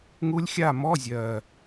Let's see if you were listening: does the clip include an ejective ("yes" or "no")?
no